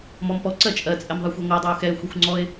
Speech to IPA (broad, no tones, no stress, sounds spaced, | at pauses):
m ɔ m p ɔ ǀ ɜ t͡ʃʼ ɜ t͡sʼ ɛ m ðˤ ɜ xʷ e ŋʷ ɜ dˤ ɜ ʊ̯ x ɛ ɪ̯ xʷ e xʷ ŋ͡ǀ ɔ ɪ̯